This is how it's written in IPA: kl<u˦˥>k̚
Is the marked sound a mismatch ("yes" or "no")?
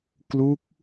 no